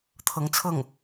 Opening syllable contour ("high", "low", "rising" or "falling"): rising